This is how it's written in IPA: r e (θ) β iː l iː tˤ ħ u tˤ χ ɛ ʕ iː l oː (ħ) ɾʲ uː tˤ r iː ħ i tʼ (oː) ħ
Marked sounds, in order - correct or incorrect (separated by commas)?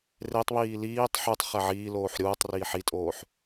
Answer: incorrect, correct, correct